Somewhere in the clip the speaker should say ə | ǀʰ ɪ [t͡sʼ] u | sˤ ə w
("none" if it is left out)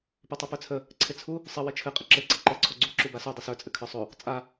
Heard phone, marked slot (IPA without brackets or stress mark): t͡sʰ